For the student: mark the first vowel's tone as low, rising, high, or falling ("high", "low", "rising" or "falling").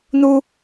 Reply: high